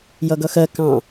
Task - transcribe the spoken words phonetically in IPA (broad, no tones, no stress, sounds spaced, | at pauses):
j ʌ ɡ ʌ x ɜ k ɑ̃